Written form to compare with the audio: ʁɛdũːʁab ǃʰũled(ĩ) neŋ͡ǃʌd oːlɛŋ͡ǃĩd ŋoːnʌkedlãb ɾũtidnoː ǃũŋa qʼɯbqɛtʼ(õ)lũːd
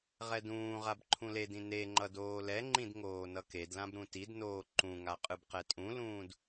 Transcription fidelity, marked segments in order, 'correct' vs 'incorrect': correct, incorrect

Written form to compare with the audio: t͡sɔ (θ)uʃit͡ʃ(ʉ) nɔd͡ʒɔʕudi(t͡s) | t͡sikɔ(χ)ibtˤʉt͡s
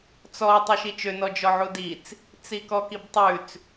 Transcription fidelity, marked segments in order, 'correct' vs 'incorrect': incorrect, incorrect, correct, incorrect

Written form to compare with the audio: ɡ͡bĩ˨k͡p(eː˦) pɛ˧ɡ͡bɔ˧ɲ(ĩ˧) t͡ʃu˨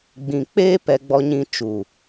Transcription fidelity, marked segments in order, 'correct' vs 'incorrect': correct, correct

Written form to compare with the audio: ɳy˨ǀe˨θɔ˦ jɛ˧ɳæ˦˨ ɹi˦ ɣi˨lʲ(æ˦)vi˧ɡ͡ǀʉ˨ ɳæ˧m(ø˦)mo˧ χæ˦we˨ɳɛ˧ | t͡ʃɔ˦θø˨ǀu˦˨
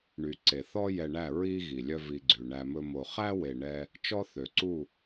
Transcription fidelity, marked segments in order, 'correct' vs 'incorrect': incorrect, incorrect

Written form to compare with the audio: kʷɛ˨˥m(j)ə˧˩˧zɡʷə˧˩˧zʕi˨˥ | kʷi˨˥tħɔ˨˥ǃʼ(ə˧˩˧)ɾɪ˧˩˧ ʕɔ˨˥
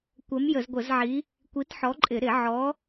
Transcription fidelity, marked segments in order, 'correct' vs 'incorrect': correct, incorrect

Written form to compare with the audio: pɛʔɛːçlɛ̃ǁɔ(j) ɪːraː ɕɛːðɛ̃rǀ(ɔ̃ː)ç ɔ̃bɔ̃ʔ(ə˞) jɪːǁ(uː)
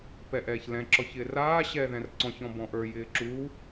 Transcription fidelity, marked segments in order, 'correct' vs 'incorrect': incorrect, incorrect, correct, correct

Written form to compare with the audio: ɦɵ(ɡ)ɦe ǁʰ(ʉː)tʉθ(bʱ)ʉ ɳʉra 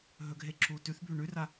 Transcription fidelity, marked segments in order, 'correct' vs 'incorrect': correct, incorrect, correct

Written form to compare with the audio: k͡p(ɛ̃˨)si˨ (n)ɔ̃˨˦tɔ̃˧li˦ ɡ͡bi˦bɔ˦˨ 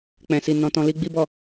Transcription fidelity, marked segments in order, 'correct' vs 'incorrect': correct, correct

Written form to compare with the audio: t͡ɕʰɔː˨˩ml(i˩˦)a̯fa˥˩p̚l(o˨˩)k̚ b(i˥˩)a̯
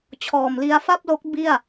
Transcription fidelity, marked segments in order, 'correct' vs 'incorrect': incorrect, incorrect, correct

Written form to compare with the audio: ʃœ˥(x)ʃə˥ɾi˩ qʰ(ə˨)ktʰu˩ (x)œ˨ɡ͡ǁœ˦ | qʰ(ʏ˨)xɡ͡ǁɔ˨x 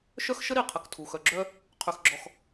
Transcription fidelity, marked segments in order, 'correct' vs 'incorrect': correct, correct, correct, incorrect

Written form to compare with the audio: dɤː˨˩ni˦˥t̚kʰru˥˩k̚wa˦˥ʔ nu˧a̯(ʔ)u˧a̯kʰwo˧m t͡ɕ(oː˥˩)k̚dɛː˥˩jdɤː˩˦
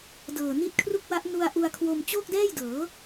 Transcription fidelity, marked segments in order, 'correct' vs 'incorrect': correct, correct

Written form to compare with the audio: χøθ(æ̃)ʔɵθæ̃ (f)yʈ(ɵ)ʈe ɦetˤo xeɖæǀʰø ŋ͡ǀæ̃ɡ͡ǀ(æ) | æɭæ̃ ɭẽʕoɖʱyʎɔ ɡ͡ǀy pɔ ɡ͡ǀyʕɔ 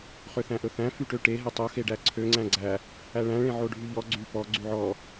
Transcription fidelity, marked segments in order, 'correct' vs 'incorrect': correct, correct, incorrect, correct

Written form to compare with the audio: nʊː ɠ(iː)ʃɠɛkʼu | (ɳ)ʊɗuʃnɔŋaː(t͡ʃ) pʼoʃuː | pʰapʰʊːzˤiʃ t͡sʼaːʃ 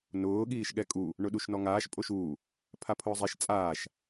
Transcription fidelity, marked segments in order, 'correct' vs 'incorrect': correct, correct, incorrect

